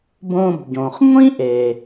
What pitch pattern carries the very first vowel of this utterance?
low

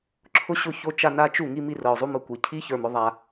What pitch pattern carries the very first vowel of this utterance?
high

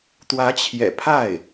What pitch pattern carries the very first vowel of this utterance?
rising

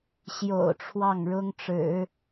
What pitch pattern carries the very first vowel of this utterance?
low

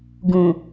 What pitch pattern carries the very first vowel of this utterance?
low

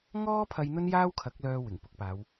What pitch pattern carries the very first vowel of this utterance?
high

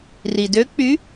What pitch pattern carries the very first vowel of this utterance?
low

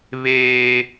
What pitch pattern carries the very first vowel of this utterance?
high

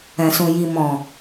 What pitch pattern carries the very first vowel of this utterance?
low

